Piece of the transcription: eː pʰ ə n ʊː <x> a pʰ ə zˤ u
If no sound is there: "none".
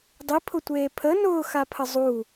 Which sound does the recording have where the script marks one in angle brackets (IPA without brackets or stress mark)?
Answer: x